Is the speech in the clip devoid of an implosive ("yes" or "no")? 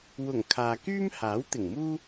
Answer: yes